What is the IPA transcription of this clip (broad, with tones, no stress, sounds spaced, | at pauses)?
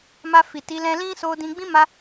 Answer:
m a˧ f i˨ t i˨˦ l ɛ̃˧ l ĩ˦ s o˧ d ĩ˧ ɡ͡b ĩ˦ m a˧